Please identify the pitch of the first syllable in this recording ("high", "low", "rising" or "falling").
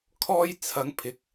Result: high